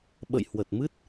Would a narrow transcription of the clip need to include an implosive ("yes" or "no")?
yes